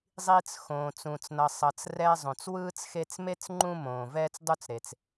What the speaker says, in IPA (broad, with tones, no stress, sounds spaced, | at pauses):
zˤ i˦ t͡s x õː˨ t͡s ũ˨ t͡s n ʌ˨ sˤ ʌ˨ t͡s r ɛː˦ zˤ õ˨ t͡s w ɯː˥ t͡s x e˦ t͡s m e˥ t͡s ŋ͡ǃ ũ˦ m õː˩ v ɛː˦ t͡s dˤ u˦ t͡s ɾ e˩ t͡s